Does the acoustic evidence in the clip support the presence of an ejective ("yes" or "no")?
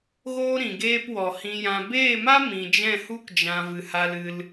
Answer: no